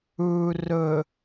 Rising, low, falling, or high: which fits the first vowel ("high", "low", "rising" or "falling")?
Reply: low